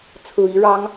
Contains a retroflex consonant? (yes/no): yes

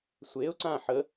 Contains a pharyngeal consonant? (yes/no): yes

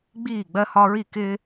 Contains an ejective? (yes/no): no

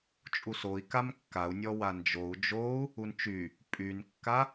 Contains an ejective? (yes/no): yes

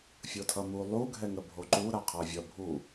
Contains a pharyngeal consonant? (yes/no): no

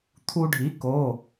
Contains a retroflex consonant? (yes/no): yes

